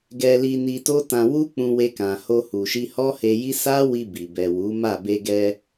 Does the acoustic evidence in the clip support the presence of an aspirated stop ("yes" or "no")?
no